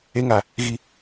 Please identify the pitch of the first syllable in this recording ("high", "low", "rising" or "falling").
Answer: high